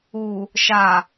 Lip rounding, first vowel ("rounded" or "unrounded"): rounded